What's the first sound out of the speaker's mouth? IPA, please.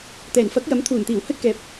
t̪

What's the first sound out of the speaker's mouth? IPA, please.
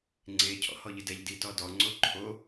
ŋ͡ǀ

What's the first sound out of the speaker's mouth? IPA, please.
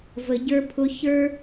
v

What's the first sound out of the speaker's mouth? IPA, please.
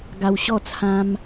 ɡ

